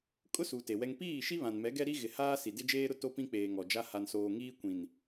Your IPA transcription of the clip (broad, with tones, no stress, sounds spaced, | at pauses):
kʼ ʊ˦ s u˨ t e˨ w ɛ˦ ŋ p iː˦˨ ʃ i˦ β ã˨ n m ɛ˨˦ ɡ ɛ˦ ɾ i˦ ɣ ɪ˨ h aː˦ s i˨ d ɪ˦ d͡ʒ eː˦ ɾ ʊ˦ t o˦ p ĩ˦ k͡p eː˨ ŋ ɔ˨ d͡ʒ a˦ h a˨ n s oː˨ ŋ iː˦ kʷ ĩ˨ n